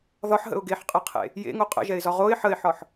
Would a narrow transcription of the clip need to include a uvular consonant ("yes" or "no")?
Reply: yes